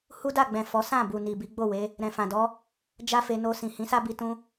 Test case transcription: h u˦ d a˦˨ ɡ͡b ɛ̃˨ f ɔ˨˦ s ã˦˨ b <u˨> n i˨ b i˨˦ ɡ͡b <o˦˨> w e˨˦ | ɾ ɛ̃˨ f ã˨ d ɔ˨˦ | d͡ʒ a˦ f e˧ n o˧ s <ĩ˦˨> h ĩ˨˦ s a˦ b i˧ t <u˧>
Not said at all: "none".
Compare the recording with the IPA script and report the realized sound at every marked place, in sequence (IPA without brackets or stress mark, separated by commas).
u˨, o˦˨, ĩ˨, ũ˧